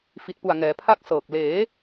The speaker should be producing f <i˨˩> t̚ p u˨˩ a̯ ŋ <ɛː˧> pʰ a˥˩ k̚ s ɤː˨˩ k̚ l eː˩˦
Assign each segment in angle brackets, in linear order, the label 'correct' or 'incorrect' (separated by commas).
correct, incorrect